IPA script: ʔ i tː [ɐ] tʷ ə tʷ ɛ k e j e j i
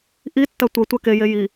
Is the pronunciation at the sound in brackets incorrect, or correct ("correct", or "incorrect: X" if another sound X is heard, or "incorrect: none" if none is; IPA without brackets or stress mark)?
correct